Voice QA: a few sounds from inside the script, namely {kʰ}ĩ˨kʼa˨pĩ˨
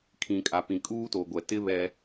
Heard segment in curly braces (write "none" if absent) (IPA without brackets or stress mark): kʰ